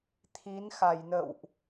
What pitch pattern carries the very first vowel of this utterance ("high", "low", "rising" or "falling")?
rising